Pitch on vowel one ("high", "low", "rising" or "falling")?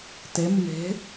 rising